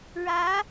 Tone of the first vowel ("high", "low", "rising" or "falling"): rising